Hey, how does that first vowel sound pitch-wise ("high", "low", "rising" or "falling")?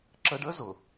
high